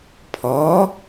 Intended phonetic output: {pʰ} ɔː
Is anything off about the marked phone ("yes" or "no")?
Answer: no